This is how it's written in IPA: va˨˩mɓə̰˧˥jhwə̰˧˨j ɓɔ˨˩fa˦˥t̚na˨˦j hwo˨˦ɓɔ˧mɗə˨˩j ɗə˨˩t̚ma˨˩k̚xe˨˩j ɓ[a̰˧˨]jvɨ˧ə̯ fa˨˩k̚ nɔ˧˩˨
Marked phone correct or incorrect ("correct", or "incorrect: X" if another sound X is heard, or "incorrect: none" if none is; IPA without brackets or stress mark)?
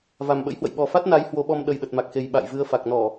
correct